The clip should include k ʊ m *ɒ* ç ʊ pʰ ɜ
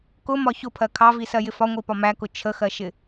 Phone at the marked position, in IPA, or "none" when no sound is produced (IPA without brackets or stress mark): ɒ